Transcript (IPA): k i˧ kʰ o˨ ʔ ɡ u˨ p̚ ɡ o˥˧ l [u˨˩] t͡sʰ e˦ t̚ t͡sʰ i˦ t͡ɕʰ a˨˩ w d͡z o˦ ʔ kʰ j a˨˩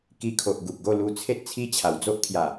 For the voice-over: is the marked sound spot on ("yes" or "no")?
no